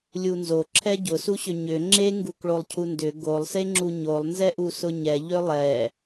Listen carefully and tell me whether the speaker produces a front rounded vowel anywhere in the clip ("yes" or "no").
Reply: yes